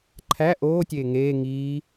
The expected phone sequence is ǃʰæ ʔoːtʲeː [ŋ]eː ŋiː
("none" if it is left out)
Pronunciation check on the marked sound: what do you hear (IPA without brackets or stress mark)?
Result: ŋ